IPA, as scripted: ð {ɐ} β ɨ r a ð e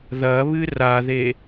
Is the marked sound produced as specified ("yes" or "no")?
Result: yes